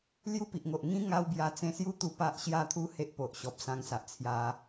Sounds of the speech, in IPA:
l j u˦ p i˨ ʔ ŋ o˨ ʔ ŋ ĩ˧ ŋ a˦ w b j a˧ t͡s ẽ˧ s j u˦ t̪ u˧ p a˦ ʔ ɕ j a˥˧ t̪ʰ u˦ h e˦ ʔ p o˨ ʔ ɕ ɔ˨ p̚ s ã˧ ŋ s a˨ ʔ t͡sʰ j a˧

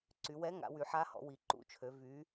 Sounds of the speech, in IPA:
ǀ y˩˧ w ɛ˧˥ ŋ a̰˩˧ w y˩˧ ħ a˧˥ h ɔ̰˩˧ w i˩˧ ǃ ṵ˧˥ t͡ʃʰ ø˩˧ v y˩˧

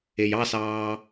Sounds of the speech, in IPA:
e j ɑ s ɑː

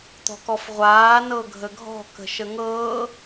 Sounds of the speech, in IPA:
t̪ ɔ̤ k ɔ f ʁʷ aː n ɤ ɡʱ ə ɡʱ ɔ̤ k ə̤ ʃ ə ŋ ɤː

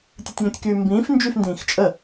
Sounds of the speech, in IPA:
tʲ ɨ tʲ ŋ õ tʲ k yː m b ĩː f n d͡ʒ y f n d ĩː x t͡ʃʼ ə

